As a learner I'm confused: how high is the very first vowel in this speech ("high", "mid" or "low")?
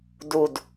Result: high